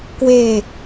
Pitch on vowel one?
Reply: low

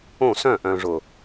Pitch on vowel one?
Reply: falling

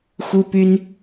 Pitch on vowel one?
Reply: high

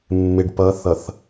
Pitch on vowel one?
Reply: low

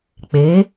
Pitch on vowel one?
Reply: rising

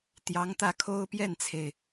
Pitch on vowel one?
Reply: rising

